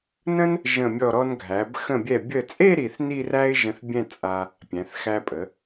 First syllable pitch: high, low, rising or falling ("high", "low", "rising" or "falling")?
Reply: high